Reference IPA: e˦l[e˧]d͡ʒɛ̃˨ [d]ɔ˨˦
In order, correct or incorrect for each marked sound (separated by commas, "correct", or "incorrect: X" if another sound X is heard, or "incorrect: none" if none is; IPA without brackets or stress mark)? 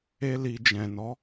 incorrect: i˧, incorrect: n